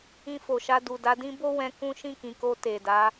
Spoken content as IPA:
ĩ˧ f o˨ ʃ a˧ d u˨ d a˨˦ d ĩ˦ b o˦ w ɛ̃˧ k ũ˦ ʃ ĩ˦˨ k ĩ˨ k o˧ t e˨ d a˨˦

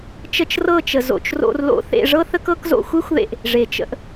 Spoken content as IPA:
t͡ʃ ə˧ t͡ʃ r ɤ˦˨ t͡ʃ ə˨ z o̰˨ t͡ʃ r o̰˧ r l o̰˧ θ ḛ˧ ʐ ɤ˦ θ ə˦ k ɤ˦ k z o̰˧ xʷ e˦ xʷ ð ḛ˧ ʔ | ʐ e˨ t͡ʃ ə̰˧ ʔ

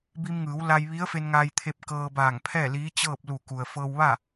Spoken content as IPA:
b i˧ m ŋ ɯː˩˧ w l a˧ j ʋ i˧˥ ə̯ f e˧ n ŋ aː˧ j t̪ʰ e˧ p̚ k ɤː˧ b aː˧˩ ŋ pʰ ɛː˥˨ l iː˧˥ t͡ɕ ɤː˥˨ p̚ l u˧˩ k u˩ ə̯ f ɤː˧ w ʋ a˥˨

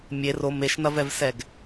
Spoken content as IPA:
mʲ e r o m e ʃ n ɐ v ɛ v s ɛ ɡ

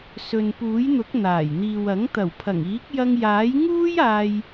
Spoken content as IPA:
s ɵ˨ n p uː˨˥ j n̪ ʊ˨˥ k̚ n̪ aː˨˩ j n̪ iː˨ w ɐ˨˥ ŋ t̪ ɐ˨˩ w pʰ ɐ˨˩ ŋ iː˨˥ k̚ j ɐ˧ ŋ j aː˨˥ j ŋ uː˥ j aː˧ j

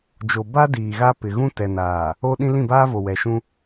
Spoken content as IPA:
d͡ʒ o˨ b a˦ d iː˨ ɣ a˦ p ɪ˨ ɣ ũ˦ t ɛ˨ n aː˨ | o˦ ɗ ĩ˦ l ĩ˦˨ b aː˦ v o˨ w ɛ˨ ʃ ũ˦

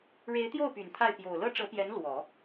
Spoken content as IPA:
ɻ e˧˥ ɪ̯ t̪ j o˥˩ ʊ̯ p y˨˩ n t̪ʰ a˥˩ ɪ̯ p j o˨˩ ʊ̯ l ɤ˥ ʈ͡ʂ ɤ˧˥ p j ɛ˧˥ n l w ɔ˨˩˦

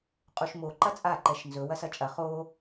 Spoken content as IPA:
qʼ u ʃ m o ǃ ɐ t͡sʼ a ǃ ɛ ʃ n z ɵ w ɐ s ɐ t͡ʃʼ ɐ χ o

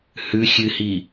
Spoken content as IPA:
h ʉ xʲ ɨ h i

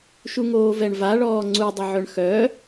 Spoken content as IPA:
ʃ u ŋ oː v ɛ ɳ v a ɭ ɔː ŋ͡ǀ u dˤ ə ʕ œ ɳ x œ

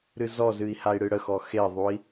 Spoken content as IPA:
ɾ ɨ z ɔ z ɨ i̯ h a i̯ ɽ ɨ ɽ ə x ɔ x e ðˤ u i̯

